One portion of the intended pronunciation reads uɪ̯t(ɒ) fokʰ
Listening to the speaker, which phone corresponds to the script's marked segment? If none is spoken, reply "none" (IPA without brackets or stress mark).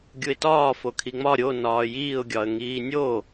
ɒː